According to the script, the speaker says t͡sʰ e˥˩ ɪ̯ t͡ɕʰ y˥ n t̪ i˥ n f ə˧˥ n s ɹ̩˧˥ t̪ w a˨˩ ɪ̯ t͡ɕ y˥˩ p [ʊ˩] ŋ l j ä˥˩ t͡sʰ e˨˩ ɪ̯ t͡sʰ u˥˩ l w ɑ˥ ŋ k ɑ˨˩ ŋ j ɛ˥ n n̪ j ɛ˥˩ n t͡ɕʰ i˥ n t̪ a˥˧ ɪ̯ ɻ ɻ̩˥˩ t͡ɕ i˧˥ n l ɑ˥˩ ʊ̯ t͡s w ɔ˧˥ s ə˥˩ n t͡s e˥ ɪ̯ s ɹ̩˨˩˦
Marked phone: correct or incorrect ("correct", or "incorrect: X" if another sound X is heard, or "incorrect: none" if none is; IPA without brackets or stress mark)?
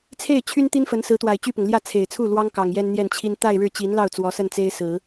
correct